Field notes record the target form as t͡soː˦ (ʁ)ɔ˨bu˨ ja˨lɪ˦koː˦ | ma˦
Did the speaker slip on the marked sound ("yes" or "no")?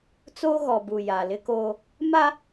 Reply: yes